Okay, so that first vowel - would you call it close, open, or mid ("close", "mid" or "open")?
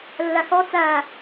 open